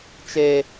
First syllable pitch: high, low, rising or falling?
high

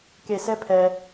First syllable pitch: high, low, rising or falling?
low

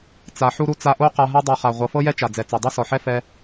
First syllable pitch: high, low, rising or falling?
low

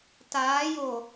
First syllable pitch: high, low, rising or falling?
rising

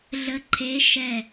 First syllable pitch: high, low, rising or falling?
rising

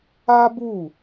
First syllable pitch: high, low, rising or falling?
high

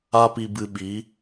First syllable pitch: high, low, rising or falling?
high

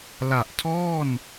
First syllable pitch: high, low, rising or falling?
low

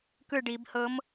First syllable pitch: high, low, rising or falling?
falling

